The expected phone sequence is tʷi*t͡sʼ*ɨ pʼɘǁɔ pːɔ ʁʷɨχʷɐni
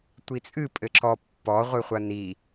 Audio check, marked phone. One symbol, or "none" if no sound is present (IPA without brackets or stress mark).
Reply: t͡sʼ